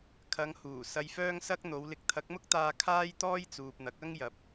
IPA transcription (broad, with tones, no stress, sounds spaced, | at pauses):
kʰ ɐ˨˧ ŋ h uː˨˩ s ɐ˧ j f œː˥ ŋ s ɐ˥ k̚ n̪ o˨˧ w l ɪ˨˥ k̚ t̪ʰ ɐ˨˥ k̚ m ʊ˥ k̚ t̪ aː˧ kʰ aː˥ j t̪ ɔː˥ j t͡s uː˨ p̚ n̪ ɐ˨˥ k̚ ɐ˥ ŋ j ɐ˨˥ p̚